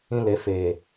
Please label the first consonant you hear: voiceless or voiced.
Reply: voiced